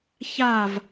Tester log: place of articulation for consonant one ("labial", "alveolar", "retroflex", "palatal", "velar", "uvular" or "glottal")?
palatal